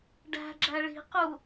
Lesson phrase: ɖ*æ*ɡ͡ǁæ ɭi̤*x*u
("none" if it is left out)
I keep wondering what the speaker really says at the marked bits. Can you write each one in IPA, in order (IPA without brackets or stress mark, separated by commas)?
æ̤, q